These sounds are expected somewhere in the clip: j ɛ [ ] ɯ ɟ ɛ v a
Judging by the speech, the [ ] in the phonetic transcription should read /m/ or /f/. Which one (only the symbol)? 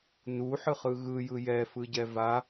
f